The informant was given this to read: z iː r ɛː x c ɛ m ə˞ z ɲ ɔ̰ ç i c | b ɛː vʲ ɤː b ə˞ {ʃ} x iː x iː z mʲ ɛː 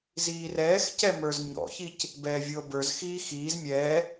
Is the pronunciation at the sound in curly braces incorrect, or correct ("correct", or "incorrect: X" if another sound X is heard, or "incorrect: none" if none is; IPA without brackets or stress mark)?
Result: incorrect: z